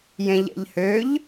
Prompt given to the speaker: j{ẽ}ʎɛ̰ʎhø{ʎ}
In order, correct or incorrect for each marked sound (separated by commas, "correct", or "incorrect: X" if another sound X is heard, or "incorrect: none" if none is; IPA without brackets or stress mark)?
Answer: correct, correct